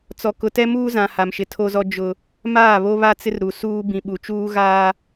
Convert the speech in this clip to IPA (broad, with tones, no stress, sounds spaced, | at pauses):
t͡s ɔ˨ k ʊ˨ t ɛ˦ m uː˦ z ã˨ h a˨ m ʃ ɪ˨ tʰ o˦ z ɔ˦ d͡ʒ ʊ˨ | m aː˦˨ β o˦ β a˦ t͡s ɪ˦ r ɾ u˨ s uː˦ b ĩ˨ ɓ u˨ t͡ʃ uː˦ ɣ aː˦